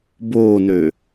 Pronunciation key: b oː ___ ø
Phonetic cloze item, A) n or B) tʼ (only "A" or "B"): A